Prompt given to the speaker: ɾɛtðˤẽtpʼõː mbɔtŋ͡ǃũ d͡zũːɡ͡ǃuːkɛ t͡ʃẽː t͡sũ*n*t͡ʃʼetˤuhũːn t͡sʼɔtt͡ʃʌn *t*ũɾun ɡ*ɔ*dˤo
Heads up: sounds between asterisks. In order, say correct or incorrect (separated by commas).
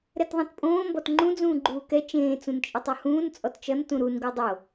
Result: correct, correct, incorrect